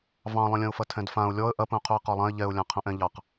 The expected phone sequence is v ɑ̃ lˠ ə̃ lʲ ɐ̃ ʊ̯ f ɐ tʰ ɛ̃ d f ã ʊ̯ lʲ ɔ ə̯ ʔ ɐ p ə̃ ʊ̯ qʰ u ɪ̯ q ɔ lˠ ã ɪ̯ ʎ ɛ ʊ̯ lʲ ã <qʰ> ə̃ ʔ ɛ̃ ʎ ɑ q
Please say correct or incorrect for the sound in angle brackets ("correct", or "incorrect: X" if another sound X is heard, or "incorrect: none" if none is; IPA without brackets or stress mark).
correct